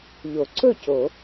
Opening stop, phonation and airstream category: click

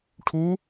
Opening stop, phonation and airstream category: aspirated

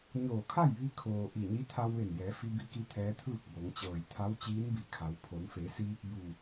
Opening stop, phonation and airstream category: aspirated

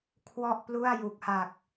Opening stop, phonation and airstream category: aspirated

